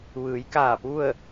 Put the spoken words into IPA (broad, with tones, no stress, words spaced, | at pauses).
ʋɯː˩˧jkaː˧˩pu˥˨ə̯